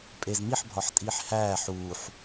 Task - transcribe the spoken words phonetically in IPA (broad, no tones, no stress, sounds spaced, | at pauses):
pʼ e z m i ħ bʱ ɒ ħ tʼ iː ħ h æː ħ uː ħ